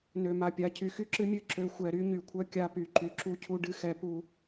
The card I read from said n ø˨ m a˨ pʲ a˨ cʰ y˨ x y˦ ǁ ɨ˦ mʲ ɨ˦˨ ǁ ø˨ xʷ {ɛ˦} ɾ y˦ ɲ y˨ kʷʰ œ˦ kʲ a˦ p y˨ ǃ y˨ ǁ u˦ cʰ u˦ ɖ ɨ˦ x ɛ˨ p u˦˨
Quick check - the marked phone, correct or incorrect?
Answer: incorrect